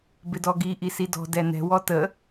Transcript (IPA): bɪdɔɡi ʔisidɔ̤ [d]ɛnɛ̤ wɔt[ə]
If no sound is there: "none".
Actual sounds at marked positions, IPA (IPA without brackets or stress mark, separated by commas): d, ə